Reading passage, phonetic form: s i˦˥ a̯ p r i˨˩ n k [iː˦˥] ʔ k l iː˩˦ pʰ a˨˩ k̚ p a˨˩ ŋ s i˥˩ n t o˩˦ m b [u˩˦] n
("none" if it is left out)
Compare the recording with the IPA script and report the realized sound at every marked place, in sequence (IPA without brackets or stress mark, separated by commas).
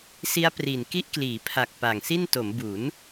i˦˥, u˩˦